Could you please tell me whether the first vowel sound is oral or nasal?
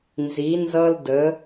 oral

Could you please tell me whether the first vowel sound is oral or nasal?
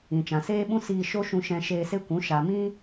nasal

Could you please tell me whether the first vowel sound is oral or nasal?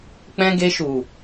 nasal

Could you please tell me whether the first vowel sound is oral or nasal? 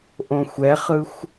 nasal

